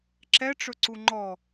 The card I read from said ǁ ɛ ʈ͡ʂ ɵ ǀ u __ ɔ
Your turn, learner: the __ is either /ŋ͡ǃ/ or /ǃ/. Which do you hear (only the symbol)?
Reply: ŋ͡ǃ